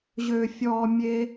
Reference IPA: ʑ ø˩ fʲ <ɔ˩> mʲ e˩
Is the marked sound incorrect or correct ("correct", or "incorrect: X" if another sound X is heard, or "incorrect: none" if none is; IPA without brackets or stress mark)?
correct